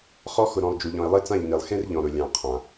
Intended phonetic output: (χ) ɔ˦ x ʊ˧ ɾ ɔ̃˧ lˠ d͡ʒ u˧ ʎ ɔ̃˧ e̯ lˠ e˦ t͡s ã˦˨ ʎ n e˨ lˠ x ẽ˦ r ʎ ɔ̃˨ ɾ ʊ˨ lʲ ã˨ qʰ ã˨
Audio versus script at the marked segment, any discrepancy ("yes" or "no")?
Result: no